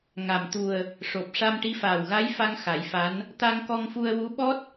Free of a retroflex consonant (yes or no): no